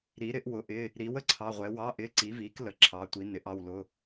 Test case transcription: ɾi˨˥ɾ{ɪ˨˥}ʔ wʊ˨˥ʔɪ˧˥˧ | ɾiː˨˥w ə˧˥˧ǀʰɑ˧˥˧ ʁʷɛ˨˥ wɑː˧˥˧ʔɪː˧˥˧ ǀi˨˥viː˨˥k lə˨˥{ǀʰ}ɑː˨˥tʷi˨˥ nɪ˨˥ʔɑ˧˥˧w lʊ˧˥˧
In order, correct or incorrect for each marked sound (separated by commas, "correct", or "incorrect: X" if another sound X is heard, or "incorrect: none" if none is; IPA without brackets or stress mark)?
correct, incorrect: ǁʰ